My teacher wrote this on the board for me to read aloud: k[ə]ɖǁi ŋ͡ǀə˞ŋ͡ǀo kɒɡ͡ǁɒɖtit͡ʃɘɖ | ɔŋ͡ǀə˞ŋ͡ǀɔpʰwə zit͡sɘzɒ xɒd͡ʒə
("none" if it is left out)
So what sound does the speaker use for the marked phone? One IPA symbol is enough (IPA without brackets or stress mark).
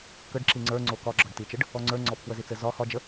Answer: ə